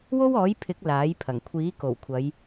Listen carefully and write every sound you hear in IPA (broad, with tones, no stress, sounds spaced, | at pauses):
w o˥ w ɔː˨˥ j pʰ ɪ˨˥ k̚ l aː˨˥ j pʰ ɐ˨˩ ŋ kʷʰ iː˨˥ k o˨˩ w kʷʰ ɐ˨˧ j